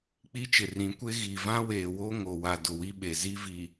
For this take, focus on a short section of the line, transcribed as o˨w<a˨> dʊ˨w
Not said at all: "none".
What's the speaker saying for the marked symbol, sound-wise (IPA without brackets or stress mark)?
a˨